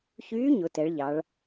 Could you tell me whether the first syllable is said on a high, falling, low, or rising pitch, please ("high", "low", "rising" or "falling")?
rising